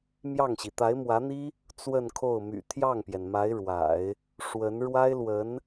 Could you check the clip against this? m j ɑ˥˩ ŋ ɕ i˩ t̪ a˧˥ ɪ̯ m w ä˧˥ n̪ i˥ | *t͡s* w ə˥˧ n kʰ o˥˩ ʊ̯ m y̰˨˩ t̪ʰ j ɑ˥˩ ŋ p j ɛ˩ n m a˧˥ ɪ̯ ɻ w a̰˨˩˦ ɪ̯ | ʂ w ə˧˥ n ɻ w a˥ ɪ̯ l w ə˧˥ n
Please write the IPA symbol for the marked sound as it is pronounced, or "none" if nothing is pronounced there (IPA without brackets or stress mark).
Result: t͡s